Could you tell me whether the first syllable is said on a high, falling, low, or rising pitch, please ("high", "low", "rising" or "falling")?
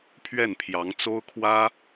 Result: falling